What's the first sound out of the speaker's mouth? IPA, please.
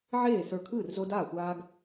ʕ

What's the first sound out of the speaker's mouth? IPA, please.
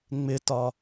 ŋ͡m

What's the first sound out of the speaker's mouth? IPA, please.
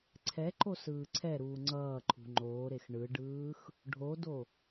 ǀʰ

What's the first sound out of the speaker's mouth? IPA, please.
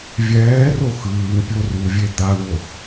vʲ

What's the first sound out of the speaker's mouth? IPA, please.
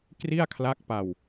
k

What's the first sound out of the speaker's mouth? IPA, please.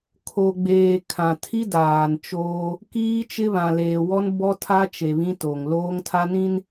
kʰ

